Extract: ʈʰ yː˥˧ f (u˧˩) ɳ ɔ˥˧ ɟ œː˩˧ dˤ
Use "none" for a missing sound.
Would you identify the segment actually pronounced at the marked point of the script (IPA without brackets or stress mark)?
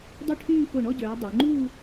o˧˩